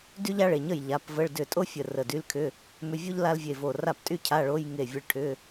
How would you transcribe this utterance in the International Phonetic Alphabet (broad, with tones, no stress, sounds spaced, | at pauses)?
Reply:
d y˥ ʎ a˥ ɭ e˩˧˩ ɲ ə˥˩ j ʎ a˩˧˩ p v ə˧˥˧ ɭ d ʏ˧˩ tʼ o˥ fʲ ə˧˩ r ə˧˩ d y˧˥˧ l kʰ ʏ˧˥˧ | m ʏ˧˥˧ vʲ o˥ ʎ l a˥ l vʲ e˧˩ v o˧˩ r a˥˩ p tʼ y˥ cʰ a˧˥˧ ɭ o˧˥˧ j ŋ e˧˩ vʲ ə˧˥˧ ɭ ʈʰ ʏ˧˥˧